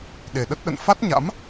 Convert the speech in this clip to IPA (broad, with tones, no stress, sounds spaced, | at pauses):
ɗ e˨˩ ɗ ə˦˥ t̚ ɗ ə̰˧˨ n f a˦˥ t̚ ɲ a̰˧˥ m